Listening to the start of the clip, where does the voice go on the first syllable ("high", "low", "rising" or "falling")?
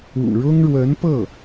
low